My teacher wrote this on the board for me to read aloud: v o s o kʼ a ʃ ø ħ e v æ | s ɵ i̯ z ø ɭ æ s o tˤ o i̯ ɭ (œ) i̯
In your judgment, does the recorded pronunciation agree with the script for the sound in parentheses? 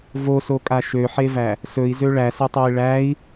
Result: no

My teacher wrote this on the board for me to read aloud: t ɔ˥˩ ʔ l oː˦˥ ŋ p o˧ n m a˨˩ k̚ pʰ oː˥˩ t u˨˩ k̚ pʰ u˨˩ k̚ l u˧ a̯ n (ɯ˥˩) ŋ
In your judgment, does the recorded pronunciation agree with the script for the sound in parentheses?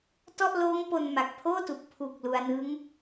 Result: no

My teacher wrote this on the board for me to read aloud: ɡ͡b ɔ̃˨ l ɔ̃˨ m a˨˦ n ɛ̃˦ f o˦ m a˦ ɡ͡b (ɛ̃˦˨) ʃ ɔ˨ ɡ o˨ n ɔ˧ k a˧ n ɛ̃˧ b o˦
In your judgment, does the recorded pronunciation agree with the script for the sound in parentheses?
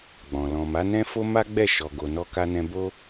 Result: no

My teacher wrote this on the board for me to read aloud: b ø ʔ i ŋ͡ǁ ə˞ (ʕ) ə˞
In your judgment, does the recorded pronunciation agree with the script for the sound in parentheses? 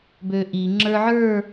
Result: yes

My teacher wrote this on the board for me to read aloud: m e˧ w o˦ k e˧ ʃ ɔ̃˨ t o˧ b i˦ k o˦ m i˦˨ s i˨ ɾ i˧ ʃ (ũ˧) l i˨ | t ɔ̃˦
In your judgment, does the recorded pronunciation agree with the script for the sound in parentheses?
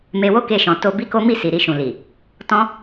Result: no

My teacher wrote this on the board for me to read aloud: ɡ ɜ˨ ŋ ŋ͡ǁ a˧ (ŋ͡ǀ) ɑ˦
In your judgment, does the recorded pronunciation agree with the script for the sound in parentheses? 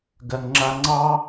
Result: yes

